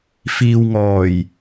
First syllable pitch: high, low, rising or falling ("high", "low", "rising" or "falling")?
low